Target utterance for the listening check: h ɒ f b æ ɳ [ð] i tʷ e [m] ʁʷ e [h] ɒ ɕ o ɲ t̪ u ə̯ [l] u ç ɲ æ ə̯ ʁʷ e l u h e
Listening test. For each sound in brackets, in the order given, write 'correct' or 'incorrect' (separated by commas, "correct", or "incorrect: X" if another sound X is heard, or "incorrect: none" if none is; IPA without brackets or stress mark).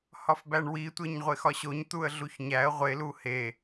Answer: incorrect: w, incorrect: ɲ, incorrect: x, incorrect: ɮ